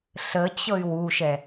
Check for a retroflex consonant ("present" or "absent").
absent